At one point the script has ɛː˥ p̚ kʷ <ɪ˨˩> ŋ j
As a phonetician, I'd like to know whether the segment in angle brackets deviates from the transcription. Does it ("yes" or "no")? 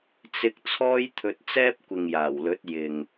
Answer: yes